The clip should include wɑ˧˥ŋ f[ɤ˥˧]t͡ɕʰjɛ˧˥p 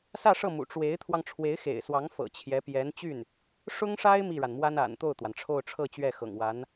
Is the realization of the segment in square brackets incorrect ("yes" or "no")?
yes